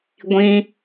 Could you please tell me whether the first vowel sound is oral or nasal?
nasal